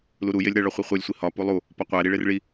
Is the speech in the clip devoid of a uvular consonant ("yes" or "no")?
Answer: no